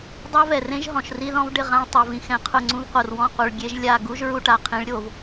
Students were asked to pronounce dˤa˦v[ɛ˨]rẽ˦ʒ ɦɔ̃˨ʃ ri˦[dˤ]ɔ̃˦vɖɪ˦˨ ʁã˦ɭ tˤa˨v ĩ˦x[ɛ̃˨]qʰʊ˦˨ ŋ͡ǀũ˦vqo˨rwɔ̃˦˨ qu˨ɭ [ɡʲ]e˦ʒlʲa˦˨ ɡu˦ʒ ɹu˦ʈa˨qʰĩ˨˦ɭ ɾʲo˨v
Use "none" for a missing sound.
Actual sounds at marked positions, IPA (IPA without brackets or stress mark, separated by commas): ɛ˨, ð, ɛ̃˨, ɡʲ